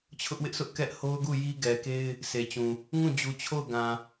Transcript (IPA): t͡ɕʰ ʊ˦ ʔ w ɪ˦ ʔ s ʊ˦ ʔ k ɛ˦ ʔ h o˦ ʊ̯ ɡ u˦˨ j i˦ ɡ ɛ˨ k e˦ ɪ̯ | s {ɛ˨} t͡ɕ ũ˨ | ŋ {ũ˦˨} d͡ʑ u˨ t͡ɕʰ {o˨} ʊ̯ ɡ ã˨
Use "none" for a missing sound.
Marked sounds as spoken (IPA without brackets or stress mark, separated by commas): e˨, ũ˦˨, o˦˨